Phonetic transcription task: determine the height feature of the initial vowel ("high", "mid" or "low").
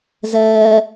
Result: mid